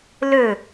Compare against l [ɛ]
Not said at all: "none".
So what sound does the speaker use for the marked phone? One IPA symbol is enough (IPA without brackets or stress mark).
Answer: ø